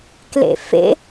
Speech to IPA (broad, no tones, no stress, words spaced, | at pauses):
klḛfḛ